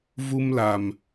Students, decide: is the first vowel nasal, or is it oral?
oral